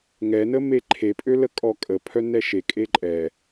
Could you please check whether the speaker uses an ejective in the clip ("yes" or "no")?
yes